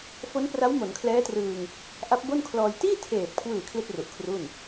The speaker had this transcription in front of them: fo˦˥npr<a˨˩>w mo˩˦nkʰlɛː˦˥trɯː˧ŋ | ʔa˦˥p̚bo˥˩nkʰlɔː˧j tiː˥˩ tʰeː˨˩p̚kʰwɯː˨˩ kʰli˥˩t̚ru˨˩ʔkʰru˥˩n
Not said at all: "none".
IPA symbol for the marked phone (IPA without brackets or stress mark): a˦˥